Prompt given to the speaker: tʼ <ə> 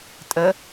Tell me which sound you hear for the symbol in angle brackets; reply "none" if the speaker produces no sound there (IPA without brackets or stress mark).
ə